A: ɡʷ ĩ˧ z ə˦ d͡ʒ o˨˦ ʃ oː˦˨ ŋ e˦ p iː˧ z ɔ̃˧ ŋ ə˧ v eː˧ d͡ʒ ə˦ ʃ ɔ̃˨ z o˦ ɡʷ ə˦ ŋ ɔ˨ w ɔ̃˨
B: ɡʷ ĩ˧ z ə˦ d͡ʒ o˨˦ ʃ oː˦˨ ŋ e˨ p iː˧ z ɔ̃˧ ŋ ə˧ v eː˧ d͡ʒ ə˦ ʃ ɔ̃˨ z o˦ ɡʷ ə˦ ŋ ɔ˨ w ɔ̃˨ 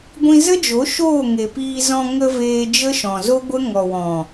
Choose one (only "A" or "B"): B